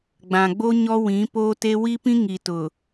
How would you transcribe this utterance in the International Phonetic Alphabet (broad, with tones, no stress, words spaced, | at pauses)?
ɡ͡bã˨ɡ͡bo˦ ɲɔ˦wĩ˨˦poː˦te˦ wi˦pĩ˦ ŋi˨tʊ˨